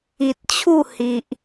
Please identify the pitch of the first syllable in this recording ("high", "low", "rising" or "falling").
low